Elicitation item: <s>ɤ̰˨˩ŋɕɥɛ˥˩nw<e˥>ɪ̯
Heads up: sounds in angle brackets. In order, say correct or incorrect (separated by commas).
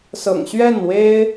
correct, correct